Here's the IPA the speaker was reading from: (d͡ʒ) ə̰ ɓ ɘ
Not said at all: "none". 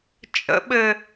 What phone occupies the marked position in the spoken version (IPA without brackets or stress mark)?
t͡ʃʼ